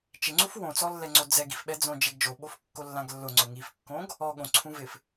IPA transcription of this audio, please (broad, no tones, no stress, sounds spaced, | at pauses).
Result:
t͡ʃ ɪ ŋ͡ǀ u f w õ t͡s ɔ lː ɛ ŋ͡ǀ o d͡z ɛ ɡ i f ɓ ɛ d͡z õ d͡ʒ e ɡ d͡ʒ o ɓ o f kː o lː ã ɡ lː ʊ ŋ͡ǀ ʊ ŋ i f kː õ ɡ | ɔ ɠ õ ǀʰ ũ v ɪ f